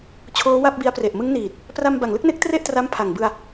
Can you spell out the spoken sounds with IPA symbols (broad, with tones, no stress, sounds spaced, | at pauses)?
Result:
t͡ɕʰ oː˦˥ w a˥˩ p̚ b i˦˥ a̯ p r e˨˩ ʔ m ɯ˦˥ ŋ n iː˨˩ t̚ | p r a˧ m b a˨˩ ŋ l ɯ˥˩ k̚ n e˦˥ k̚ t r e˥˩ ʔ t r a˦˥ m pʰ a˨˩ ŋ b ɯ˧ a̯